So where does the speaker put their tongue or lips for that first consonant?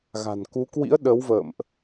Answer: velum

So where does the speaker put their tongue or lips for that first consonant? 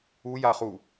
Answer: palate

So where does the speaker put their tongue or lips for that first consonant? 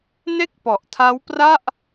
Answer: tongue tip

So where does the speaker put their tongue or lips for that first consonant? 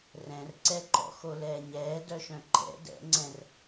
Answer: tongue tip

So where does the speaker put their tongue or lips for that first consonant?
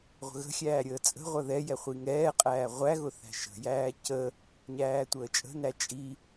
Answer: uvula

